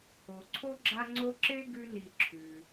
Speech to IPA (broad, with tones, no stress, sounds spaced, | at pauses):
o˩ ǀʰ o˥ ɡ͡ǁ a˦ ŋ͡ǀ o˦ ǁ e˥ ɡ ʉ˦ n i˨ ǁʰ ʉ˩